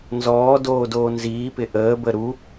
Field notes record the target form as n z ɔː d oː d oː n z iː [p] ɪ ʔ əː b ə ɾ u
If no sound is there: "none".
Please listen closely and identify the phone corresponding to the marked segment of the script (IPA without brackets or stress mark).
p